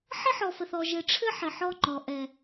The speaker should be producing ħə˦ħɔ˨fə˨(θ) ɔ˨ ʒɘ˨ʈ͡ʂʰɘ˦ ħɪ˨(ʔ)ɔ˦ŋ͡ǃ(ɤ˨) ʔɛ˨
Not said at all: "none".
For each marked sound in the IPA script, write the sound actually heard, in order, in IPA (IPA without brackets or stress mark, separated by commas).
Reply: θ, ħ, ɔ˨